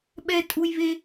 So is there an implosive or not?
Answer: yes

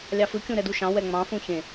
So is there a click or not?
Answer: no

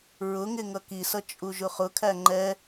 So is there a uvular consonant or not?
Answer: yes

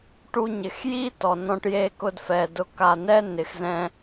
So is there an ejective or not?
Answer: no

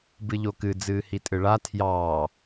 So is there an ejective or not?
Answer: yes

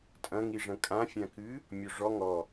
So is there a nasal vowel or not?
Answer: yes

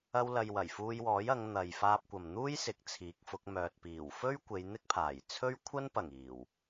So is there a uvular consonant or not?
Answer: no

